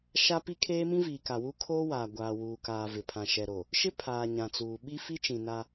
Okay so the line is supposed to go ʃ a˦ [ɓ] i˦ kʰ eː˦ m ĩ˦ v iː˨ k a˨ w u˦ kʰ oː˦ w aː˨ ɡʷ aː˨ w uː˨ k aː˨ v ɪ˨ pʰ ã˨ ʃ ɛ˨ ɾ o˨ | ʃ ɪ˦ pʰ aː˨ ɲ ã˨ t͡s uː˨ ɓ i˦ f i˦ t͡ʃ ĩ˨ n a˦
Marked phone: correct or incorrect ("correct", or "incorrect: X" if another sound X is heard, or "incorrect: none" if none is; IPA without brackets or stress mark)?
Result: incorrect: p